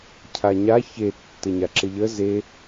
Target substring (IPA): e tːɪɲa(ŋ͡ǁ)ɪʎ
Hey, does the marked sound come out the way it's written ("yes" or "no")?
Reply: no